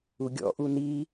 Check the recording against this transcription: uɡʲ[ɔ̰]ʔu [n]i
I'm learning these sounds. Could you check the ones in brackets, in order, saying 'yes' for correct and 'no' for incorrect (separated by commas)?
yes, yes